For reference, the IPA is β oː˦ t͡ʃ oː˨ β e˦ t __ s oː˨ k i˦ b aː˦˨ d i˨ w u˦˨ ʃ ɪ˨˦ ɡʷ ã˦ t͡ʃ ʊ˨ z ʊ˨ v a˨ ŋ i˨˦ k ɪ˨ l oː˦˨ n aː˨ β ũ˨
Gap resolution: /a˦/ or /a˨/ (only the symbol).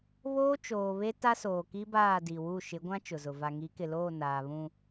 a˦